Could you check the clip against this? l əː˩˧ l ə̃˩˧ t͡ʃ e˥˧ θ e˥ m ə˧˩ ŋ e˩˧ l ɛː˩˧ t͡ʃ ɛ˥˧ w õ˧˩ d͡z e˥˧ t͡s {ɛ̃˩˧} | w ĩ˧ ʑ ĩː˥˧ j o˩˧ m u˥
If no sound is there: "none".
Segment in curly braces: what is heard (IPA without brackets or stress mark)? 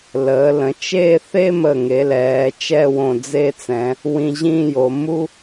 ɛ̃˩˧